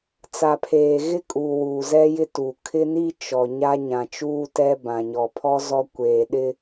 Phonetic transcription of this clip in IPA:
t͡s a˨ pʰ eː˨ ɣ ɪ˦ kʼ uː˨ w uː˨ z ɛ˦ j ɪ˦ t u˨ kʰ ɪ˦ n i˦ t͡ʃ ɔ˨ ɲ a˦ ɲ ã˨ t͡ʃ uː˦ t ɛ˦ b ã˨ ɲ ɔ˨ pʰ ɔ˦ z ɔ˦ kʷ eː˨ ɗ ɪ˦

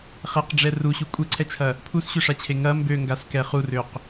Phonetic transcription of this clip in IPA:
χ ɛ q ɖ͡ʐ ɛ r u ɕ u kʷʼ e ǀʰ ɛ t͡ʃʰ ɐ | pʰ u s ɕ ø ʂ a t͡ɕʰ e ŋ ɐ m b ø ŋ ɡ a s k ɛ χ u r ø q

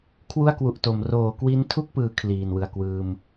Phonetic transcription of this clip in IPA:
kʰ w u˥˩ a̯ k w u˨˩ ʔ t o˩˦ m r oː˩˦ k w i˦˥ n tʰ u˥˩ k̚ p ɯː˦˥ kʰ l iː˨˩ n w ɯ˨˩ a̯ k w ɯː˧ m

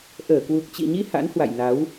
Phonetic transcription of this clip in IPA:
ʔ əː˧˩ k w u˨˩ k̚ t͡ɕ ḭ˧˨ ɲ i˧ h a̰˧˥ n h w a̰˧˨ j n a˨˦ w

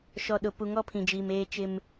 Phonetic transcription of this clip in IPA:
ʃ ɔ˨ ɗ ʊ˨ p u˨ ŋ ɔ˦ pʰ ĩ˨ d͡ʒ iː˨ m eː˦ t͡ʃ ɪ˦ m

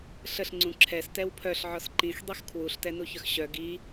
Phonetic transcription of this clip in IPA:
ɬ ə ɬ ŋ͡ǀ ũ ǁʰ ɛ s t ɛ w pʰ œ ɬ ʕ ɔ s ǃ ĩ x dˤ i x kʰ w u ɬ t ɛ n u ç œ x ɕ œ ɡ i

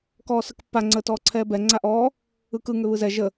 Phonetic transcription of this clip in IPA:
k ɔː s ə k pː a ŋ͡ǀ əː t ɔː ǀʰ ɛː b ɛ ŋ͡ǀ a ʔ ɔː | ɯ k ɯ ŋ ʏ β ɯ z ɛ ʒ ə

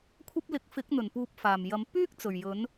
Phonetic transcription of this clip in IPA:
kʷʰ ɐ˥ p̚ l ɪ˨˥ k̚ f ɪ˨˥ k̚ n̪ ɵ˨˩ n p uː˧ p̚ f aː˨˩ m j ɐ˨˥ m p yː˥ k̚ t͡s ɵ˨˩ ɥ j ɵ˨˥ n

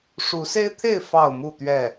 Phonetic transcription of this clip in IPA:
ʂ u˨˦ s e˦ ɪ̯ t̪ʰ e˥˨ ɪ̯ f ɑ˥˨ ʊ̯ m u˥˨ t̪ ɥ ɛ˥˨

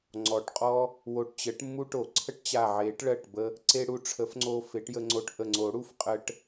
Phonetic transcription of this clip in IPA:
ŋ͡ǀ ɔ˨˩˦ ʈ qʼ ɔ˥ | w o˧˩ ʈ t͡ɕ ə˨˥ ʈ mː u˥ ʈ o˨˩˦ ǀʰ ə˥ ʈ t͡ɕ a˧˩ ʕ e˨˩˦ ʈ ɭ ɜ˧˩ ʈ b ə˧ | ǀ e˥ ɽ u˧ ʈ͡ʂʰ ə˨˩˦ f ŋ͡ǀ o˧ f e˨˩˦ ʈ j ə˧ ŋ͡ǀ o˧ ʈ ʔ ə˧˩ ŋ͡ǀ o˨˩˦ ɽ u˧ f qʼ ə˧ ʈ

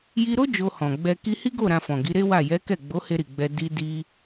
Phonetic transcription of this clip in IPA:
j i˧ ɾ o˦ d͡ʒ o˧ h ɔ̃˨ ɡ͡b ɛ˧ k i˧ h i˦ ɡ o˦˨ ɾ ã˧ f ɔ̃˨ ɡ i˨˦ ɾ e˦ w a˦˨ j ɛ˨˦ k ɛ˦˨ ɡ͡b o˨˦ h e˧ ɾ i˨ ɡ͡b ɛ˧ d i˦ d i˦

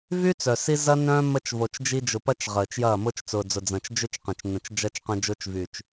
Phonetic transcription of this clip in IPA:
v y˦ t͡s œ˨ s i˦ z ɐ˦ n œ̃ː˦ m ə˦ t͡ʃ v o˨ t͡ʃ d͡ʒ i˦ d͡ʒ ʊ˨ p ɐ˦ t͡ʃ ʁ əː˨ t͡ʃ j ɐː˦˨ m ʊ˦ t͡ʃ t͡s ʊː˨ d͡z ʊ˨ d͡z ɐ̃˨ t͡ʃ d͡ʒ ʏ˦ t͡ʃ q ɐ̃˨ t͡ʃ n ə̃˨ t͡ʃ d͡ʒ ɐ˦ t͡ʃ q ɐ̃˦ d͡ʒ ʊː˦ t͡ʃ v y˨ t͡ʃ

